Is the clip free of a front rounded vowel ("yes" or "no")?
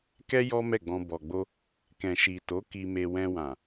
yes